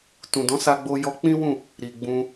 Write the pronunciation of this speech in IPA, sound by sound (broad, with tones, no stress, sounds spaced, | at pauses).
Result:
t ũ˨ d ɔ̃˨˦ s a˧ ɡ͡b o˧ j ɔ˧ k͡p ĩ˦ w ũ˦˨ | ɾ i˨ ɡ͡b ũ˧